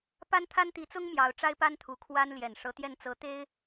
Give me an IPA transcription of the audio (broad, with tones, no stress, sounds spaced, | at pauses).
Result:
p a˥ n t̪ʰ a˥ n t̪ i˧˥ t͡s ʊ˥ ŋ m j ɑ˧˥ ʊ̯ ʈ͡ʂ a˥ ɪ̯ p a˥ n t̪ʰ u˧˥ kʰ w a˥ n l j ɛ˨˩ n ʂ ɤ˧˥ t̪ j ɛ˥˩ n t͡s ɤ˧˥ t̪ e˥ ɪ̯